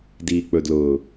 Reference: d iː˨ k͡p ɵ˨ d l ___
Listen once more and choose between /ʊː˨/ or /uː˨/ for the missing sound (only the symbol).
ʊː˨